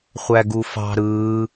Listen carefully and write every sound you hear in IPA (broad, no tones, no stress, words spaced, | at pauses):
χʷæɡufɑ̤ ɾɯː